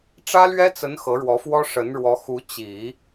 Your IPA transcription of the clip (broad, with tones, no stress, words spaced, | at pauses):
ʈ͡ʂä˥lɥɛ˥t͡sə˧˥n xɤ˧˥ɻwɔ˧˥fwɔ˥ ʂə˧˥nɻwɔ˧˥xu˧˥ t͡ɕi˨˩˦